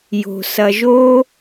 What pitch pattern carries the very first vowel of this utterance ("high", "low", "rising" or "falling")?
low